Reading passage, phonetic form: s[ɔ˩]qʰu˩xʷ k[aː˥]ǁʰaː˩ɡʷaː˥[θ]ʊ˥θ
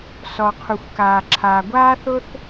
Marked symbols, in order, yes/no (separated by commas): yes, no, yes